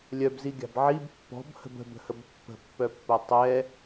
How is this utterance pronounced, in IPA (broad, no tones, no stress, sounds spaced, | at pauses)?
lʲ œ b z i ɡʲ a̤ b ʕ i b pː ɔ̤ b h ə̤ b ə̤ b ə̤ h ə b pː ə̤ pː œ pː o tˤ ɛ